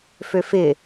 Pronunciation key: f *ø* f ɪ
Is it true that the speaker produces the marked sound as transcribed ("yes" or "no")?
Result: yes